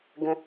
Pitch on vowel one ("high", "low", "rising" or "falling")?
low